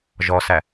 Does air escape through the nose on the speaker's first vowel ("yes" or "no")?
no